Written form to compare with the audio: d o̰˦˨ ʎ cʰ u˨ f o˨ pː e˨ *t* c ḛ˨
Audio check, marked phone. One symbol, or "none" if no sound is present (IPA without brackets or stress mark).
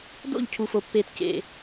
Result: t